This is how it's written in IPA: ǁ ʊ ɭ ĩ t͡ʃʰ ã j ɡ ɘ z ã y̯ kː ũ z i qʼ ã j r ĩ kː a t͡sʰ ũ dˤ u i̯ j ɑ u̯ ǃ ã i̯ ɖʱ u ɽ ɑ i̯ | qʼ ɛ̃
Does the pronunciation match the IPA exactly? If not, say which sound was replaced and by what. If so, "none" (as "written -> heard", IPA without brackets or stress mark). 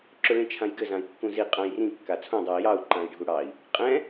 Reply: y̯ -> i̯